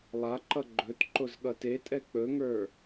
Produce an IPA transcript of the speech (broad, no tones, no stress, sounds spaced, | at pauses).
lˠ a ǃ ʌ ɡ͡ǃ ɵ t ǃ o z ɠ ʌ t e tʼ ɛ k͡p ɵ ŋ ə˞